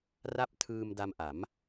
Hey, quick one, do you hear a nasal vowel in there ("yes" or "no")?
no